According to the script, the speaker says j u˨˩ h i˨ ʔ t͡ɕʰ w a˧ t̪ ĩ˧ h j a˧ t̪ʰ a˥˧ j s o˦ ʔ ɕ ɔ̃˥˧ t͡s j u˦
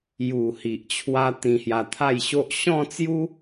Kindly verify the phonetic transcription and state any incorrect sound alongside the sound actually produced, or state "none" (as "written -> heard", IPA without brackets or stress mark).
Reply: s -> ɕ